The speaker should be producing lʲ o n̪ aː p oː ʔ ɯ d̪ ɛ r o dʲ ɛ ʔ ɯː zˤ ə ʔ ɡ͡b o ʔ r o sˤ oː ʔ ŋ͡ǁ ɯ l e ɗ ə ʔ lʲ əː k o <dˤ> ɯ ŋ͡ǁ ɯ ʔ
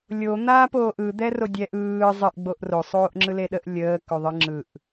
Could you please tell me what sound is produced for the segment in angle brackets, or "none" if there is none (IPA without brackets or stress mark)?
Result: ðˤ